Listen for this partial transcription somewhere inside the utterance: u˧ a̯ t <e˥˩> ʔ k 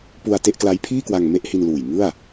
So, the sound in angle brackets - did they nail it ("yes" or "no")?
yes